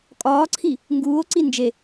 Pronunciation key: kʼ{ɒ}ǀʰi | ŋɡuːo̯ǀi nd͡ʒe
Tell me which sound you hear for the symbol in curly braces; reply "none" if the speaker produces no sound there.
ɒː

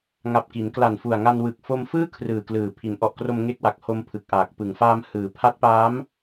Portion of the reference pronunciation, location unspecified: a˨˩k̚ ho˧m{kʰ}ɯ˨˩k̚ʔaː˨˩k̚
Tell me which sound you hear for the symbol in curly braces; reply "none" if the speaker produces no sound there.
pʰ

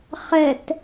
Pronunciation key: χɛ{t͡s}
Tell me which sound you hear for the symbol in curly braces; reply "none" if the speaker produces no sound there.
t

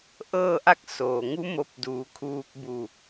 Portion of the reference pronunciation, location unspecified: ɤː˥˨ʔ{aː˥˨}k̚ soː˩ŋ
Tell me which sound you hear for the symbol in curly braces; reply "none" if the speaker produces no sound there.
a˥˨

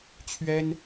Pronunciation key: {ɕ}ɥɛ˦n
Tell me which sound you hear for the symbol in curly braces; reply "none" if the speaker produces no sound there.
t͡ɕʰ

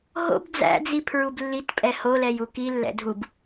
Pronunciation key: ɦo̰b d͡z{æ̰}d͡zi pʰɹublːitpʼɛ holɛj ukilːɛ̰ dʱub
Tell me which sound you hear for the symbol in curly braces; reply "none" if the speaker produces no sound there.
æ̰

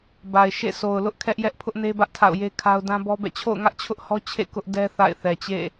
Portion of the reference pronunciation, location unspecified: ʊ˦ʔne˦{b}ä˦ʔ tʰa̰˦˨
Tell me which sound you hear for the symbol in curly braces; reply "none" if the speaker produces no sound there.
b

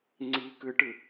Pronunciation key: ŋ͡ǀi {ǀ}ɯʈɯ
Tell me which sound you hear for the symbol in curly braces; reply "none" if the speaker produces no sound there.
k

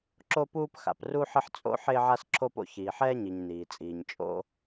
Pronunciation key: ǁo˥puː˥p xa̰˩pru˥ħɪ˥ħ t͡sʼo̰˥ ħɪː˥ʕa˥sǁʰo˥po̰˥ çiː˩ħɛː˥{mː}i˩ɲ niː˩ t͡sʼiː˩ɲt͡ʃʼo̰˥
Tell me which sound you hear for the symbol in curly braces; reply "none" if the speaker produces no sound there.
ɲ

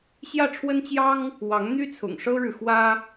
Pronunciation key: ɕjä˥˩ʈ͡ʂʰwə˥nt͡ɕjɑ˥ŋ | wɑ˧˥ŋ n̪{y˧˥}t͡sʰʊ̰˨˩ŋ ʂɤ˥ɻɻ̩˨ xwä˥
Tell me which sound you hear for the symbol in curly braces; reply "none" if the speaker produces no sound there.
y˥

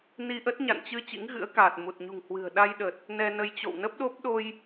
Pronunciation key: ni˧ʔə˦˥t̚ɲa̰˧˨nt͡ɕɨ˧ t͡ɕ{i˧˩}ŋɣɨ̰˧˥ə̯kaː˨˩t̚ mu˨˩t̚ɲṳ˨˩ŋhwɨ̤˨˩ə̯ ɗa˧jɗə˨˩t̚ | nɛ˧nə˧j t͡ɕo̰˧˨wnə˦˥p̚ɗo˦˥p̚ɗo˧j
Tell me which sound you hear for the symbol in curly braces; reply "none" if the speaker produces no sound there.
ḭ˧˥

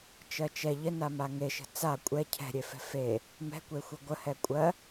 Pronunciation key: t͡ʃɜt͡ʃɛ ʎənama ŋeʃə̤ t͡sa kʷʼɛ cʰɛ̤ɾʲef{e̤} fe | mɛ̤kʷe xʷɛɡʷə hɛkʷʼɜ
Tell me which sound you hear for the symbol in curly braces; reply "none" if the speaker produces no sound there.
ɛ̤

